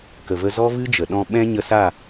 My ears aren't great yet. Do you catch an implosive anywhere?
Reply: yes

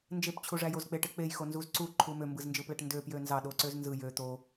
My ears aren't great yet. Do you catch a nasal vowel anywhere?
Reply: no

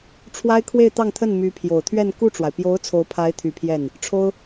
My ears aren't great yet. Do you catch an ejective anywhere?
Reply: no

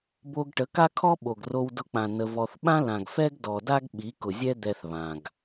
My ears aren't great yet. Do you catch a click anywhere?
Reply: no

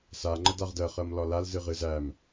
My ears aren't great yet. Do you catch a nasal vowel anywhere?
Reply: no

